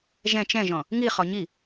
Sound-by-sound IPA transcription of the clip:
ʒ ɛ̃ t͡ʃ ɛ̃ ʒ ɔ̃ | ŋ i χ ɔ ɲ i

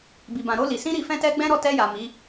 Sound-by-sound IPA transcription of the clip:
b i˨ b ã˨ ɾ o˧ l i˨ s ĩ˧ ɾ i˨ f ɛ̃˧ t ɛ˧ ɡ͡b ɛ̃˦ ɾ ɔ˦˨ t ɛ˧ j a˨ m i˨˦

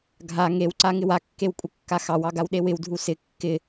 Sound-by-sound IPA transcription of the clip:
ɡʱ a ŋ e w ǀ a ŋ ɪ w a kː e w kʷʼ ə kː a x ɑ w ɑ ɡ a w ɗ e w ɪ w dʱ u s ɪ kː ɪ

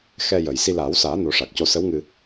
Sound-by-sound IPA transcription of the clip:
x ɛ˧ j ə˨˩ j s i˧ l aː˨˩˦ w s aː˨˩˦ n o˨˩˦ ʂ a˨˩ k̚ c o˧ s ə˧˥ w ŋ ɨ˧

